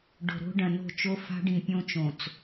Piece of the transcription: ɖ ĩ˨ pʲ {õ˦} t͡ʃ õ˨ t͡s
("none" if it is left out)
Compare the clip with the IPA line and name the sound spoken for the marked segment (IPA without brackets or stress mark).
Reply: õ˦